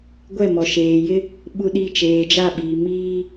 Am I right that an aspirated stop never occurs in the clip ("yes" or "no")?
yes